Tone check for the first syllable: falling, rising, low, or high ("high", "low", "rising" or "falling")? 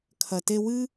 low